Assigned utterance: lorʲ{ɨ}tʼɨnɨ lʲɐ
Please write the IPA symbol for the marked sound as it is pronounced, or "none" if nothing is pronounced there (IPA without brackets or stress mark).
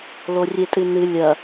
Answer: e